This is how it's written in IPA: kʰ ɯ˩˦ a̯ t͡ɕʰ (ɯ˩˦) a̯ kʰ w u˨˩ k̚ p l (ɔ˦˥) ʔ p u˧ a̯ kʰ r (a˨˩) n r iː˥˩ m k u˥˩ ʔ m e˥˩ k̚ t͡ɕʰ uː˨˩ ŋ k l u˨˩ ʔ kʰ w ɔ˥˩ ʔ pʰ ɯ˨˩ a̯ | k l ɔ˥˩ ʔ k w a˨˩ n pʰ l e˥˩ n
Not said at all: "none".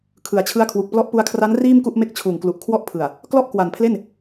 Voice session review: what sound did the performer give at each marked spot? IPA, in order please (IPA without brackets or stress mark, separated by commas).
ɯ˦˥, ɔ˦˥, a˦˥